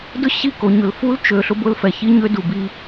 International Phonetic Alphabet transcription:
d ʊ˦ ɕ i˦˨ k o˨ ɲ ʊ˨ l f u˦ l t͡ʃ ø˨ ɬ ʊ˦ b ʊ˦ l f ɛ˨ ç i˦ ɲ ø˦ d u˨ b i˦

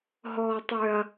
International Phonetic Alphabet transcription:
ɦ ɔː˦ tˤ ø˦ ɐ̯

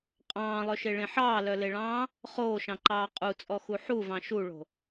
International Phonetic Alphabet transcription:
qʼ ɑ̃ː lˠ œ ʃ e ɭ ẽ ħ ɑː l œ l e ɭ ɑ̃ː | χ oː ʃ ɑ̃ ǃ ɑː qʼ u t͡sʼ ɔ x u ħ u v ɑ̃ ʃ u ɭ o̤

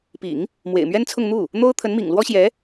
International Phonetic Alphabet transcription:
p ḭ˨˩˦ ŋ | m w ḛ˨˩ ɪ̯ m ɥ ɛ˥ n t͡sʰ ʊ˥˧ ŋ n̪ u˥˩ | n̪ o˥ ʊ̯ t̪ʰ ə˧˥ n m ḭ˨˩ ŋ l w ɔ˥ ɕ j ɛ˧˥

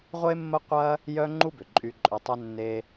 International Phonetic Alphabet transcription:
ʁʷ e˥ mː ə˥ qʷ ɐ˥ | j œ˥ ŋ͡ǃ u˥ b ʏ˩ ǃʼ y˧ ǃʼ ʏ˧ tˤ œ˥ nː e˧

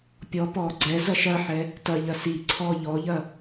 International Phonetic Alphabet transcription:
pʲ ɔ p ɔ ɡ͡ǀ ɛ z ɐ ʃ ɐ ħ ɛ | t ɐ ʎ ɐ s i ǀʰ ɔ ʎ ɔ ʎ ɐ

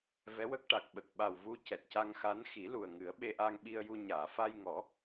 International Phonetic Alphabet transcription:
v ɛ˧˥ w ə˦˥ k̚ ʈ a˨˩ k̚ ɓ ə˨˩ k̚ ɓ a˨˩ w v u˧ c ɛ˨˩ t̚ c a˧ ŋ x a˧˥ n x i˨˩˦ l u˨˩ ə̯ ŋ ɨ˨˩˦ ə̯ ɓ e˧ ʔ aː˧ ŋ ɓ i˧ ə̯ j u˧ ɲ aː˨˩˨ f a˧ j ŋ ɔ˨˩˦

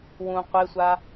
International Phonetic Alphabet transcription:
w ũ qʷ e sʷ a

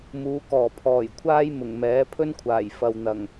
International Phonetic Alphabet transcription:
m uː˨˧ k ɔː˨˩ pʰ ɔː˨˩ j kʷʰ aː˥ j m ʊ˨˩ ŋ m ɛː˨˥ pʰ ɵ˥ n kʷʰ aː˨˩ j f ɐ˨ w n̪ ɐ˨˩ ŋ

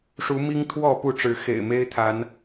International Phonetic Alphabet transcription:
ʂ u˨˦ m i˦ ŋ t̪ʰ w ɔ˥˨ p u˥˨ ʈ͡ʂ ɻ̩˨˦ x ḛ˨˩ ɪ̯ m e˦ ɪ̯ t̪ʰ a˨˦ n

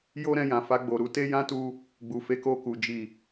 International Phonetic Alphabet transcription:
j o˦ ɾ ɛ̃˧ j ã˨ f a˧ ɡ͡b o˨ ɾ u˧ t e˦ j ã˦ t u˧ | ɡ͡b u˨ f e˨˦ k o˧ k u˨ d͡ʒ i˨

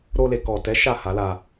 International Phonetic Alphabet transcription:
ɾ o˧ l e˨ k ɔ˨ t ɛ˨˦ ʃ a˦˨ h a˨˦ l a˧

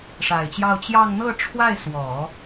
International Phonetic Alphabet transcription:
ʂ a˨˩ ɪ̯ t͡ɕ j ɑ˥˧ ʊ̯ t͡ɕ j ɑ˥˧ ŋ n̪ ɤ˥˧ ʈ͡ʂʰ w a˥˩ ɪ̯ s w ɔ˨˩˦

